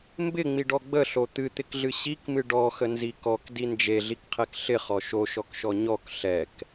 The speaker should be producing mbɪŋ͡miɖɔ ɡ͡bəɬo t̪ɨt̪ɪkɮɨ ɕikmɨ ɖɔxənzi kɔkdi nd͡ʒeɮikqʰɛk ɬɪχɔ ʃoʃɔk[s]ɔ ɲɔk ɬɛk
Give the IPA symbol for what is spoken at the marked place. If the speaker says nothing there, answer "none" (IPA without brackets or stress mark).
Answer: ʃ